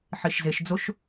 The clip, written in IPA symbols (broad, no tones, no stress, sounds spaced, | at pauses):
ħ i ʃ z e ʃ d͡z o ʃ